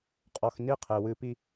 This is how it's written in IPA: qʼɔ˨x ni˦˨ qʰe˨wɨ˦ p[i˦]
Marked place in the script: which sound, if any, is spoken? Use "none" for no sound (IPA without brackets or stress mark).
i˦